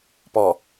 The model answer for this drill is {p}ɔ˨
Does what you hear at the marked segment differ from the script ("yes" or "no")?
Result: no